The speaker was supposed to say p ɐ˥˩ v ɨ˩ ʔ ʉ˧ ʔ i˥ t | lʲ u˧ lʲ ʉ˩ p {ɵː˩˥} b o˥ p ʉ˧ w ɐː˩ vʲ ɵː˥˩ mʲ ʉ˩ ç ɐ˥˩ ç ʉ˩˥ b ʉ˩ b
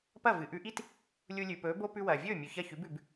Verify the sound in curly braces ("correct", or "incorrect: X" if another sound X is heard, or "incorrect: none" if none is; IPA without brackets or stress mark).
correct